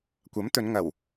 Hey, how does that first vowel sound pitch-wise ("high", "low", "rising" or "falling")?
rising